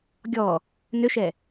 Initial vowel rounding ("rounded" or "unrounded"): rounded